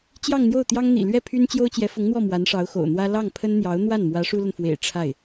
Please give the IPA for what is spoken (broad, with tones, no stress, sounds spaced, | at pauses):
t͡ɕ j ɑ˥˧ ŋ n̪ j o˥˩ ʊ̯ t̪ j ɑ˥ ŋ n̪ ḭ˨˩ l ɥ ɛ˥˩ pʰ y˥ n t͡ɕ j o˥ ʊ̯ t͡ɕ j ɛ˧˥ f ʊ˧˥ ŋ n̪ w ɔ˥˩ m w a˧˥ n ʂ ɑ˧˥ ʊ̯ x o̰˨˩ ʊ̯ n̪ w ä˥ l ɑ˥˩ ŋ pʰ ə˥ n n̪ j ɑ˧˥ ʊ̯ n̪ w a˥˩ n m w ä˧˥ ʂ u˥ l ə˨ n f w ḛ˨˩ ɪ̯ ʈ͡ʂʰ a˥˩ ɪ̯